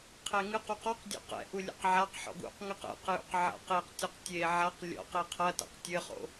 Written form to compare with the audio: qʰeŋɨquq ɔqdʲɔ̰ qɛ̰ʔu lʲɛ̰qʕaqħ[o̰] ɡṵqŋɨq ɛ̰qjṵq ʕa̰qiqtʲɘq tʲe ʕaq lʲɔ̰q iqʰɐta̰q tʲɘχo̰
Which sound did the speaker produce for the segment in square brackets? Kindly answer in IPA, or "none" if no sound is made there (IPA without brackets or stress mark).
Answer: ɔ̰